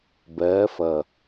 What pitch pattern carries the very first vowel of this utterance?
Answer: rising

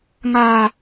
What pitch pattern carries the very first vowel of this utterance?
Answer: high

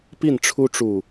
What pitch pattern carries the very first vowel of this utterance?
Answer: falling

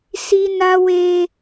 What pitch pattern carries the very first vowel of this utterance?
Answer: high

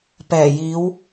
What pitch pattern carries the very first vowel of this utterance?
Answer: low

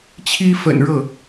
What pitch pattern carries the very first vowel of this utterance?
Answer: high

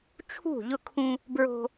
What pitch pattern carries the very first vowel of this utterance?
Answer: falling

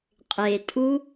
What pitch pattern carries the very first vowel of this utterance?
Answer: low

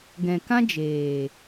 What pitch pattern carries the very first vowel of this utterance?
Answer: low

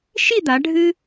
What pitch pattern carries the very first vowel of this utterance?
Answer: falling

